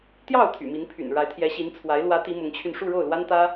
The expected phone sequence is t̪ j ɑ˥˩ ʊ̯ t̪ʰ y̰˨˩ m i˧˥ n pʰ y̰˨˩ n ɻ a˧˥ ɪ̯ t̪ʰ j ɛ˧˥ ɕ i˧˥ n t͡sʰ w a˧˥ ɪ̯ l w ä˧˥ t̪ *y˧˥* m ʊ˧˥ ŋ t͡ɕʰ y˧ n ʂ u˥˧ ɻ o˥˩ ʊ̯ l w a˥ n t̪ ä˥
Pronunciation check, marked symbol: incorrect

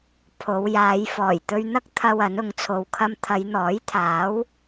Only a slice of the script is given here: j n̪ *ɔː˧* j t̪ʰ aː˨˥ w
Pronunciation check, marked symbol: incorrect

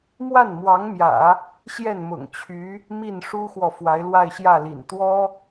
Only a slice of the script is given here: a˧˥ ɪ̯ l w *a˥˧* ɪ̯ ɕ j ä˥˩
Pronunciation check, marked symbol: correct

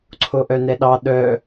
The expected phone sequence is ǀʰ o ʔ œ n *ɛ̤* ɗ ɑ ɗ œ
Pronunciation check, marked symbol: incorrect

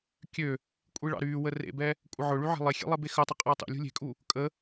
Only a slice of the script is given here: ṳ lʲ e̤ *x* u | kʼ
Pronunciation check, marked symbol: incorrect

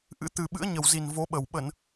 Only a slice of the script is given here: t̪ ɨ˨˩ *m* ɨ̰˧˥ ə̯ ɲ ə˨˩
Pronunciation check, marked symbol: incorrect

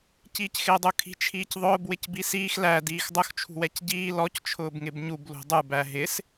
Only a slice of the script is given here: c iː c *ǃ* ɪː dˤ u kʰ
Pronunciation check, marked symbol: incorrect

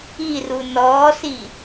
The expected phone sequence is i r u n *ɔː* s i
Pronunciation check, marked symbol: correct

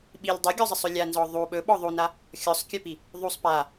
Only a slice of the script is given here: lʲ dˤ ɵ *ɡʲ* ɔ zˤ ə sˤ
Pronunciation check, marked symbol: correct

